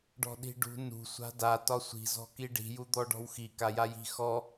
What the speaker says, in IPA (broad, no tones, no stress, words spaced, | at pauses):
ɖɔ̤ɗi̤ɖṳ nṳ sʷa̤da tɒsʷi̤ zɔ̤kiɖi̤ jud̪ɔɖɔ̤wxi kajaji̤ xɔ